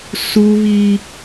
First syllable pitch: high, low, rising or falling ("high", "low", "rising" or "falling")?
high